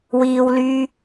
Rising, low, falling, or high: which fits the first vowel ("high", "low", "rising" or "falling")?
low